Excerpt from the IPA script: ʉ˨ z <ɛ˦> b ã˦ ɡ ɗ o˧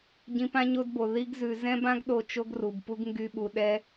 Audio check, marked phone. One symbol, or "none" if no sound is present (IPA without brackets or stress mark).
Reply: ɛ̃˦